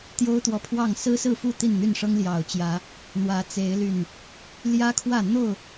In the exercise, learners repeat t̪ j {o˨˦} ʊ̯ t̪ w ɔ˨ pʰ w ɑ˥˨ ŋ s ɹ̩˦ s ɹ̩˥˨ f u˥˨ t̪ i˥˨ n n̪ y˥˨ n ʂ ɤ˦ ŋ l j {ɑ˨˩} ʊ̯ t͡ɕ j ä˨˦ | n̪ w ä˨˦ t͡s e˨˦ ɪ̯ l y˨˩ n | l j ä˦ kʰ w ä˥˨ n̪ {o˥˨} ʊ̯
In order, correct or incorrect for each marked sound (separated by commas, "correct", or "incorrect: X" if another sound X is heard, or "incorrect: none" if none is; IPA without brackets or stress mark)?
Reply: incorrect: o˦, correct, correct